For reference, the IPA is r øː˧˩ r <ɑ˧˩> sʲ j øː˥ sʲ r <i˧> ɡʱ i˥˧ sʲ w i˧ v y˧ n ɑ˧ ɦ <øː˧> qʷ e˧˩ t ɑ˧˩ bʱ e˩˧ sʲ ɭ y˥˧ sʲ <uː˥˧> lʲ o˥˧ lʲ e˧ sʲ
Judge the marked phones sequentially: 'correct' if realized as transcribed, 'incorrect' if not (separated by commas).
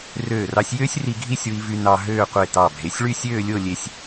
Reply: incorrect, correct, incorrect, incorrect